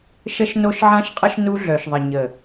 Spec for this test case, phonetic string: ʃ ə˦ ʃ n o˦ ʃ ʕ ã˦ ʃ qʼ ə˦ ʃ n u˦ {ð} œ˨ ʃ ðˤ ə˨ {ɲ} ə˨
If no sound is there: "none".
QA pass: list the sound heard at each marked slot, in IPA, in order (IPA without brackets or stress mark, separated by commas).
ɮ, ɲ